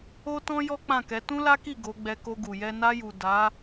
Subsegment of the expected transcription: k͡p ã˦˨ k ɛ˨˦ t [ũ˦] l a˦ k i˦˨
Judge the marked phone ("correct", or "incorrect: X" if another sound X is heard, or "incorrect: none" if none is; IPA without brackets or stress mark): correct